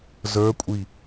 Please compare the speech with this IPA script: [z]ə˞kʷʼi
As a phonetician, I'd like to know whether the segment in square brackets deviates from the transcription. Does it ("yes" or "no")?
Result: no